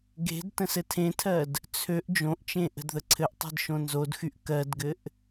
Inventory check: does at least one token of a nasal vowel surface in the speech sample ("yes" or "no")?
yes